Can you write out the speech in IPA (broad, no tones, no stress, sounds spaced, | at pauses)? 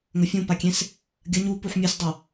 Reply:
ŋ ɵ fʲ ũ p a kʲ ẽ s | ɡʲ ɐ ɲ u p u ħ mʲ ɨ s dˤ a